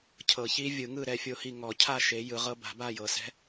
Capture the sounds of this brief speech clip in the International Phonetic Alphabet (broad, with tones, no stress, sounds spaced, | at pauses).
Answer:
cʰ ɤ˨˩˦ ç i˧˥ vʲ ɯ˨˩˦ ŋ ɯ˥˨ ɾ ɛ˥˨ fʲ o˥˨ h i˥˨ ŋ ɔ˨˩˦ cʰ a˥˨ ʃ e˨˩˦ j ɯ˨˩˦ ʁ ɤ˧˥ b a̤˨˩˦ b a˥˨ j ɤ˨˩˦ s ɛ̤˧˥